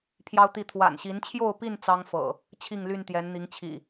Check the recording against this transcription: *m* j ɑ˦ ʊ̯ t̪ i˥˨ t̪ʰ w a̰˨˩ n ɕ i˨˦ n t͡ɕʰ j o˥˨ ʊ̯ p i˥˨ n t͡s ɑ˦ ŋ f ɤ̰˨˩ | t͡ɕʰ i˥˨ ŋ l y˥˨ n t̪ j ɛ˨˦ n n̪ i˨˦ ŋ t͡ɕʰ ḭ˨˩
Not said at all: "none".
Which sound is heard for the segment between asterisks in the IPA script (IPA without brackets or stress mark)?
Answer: pʰ